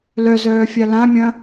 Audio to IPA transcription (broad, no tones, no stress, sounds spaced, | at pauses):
l œ z œː fʲ a l ã mʲ ɐ̃